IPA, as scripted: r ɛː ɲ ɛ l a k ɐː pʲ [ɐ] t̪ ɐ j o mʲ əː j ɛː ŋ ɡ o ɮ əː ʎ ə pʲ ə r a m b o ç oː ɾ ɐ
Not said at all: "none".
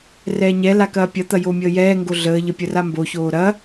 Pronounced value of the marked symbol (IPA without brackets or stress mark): ɐ